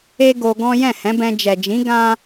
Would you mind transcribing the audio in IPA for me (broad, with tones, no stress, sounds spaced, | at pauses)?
e˦ ɡ o˧ ɡ ɔ̃˦ j ɛ̃˦˨ h ɛ̃˨˦ b ɛ̃˧ d͡ʒ ɛ˨ d͡ʒ ĩ˨˦ ɡ ã˦